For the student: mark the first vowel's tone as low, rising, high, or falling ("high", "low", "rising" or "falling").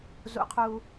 high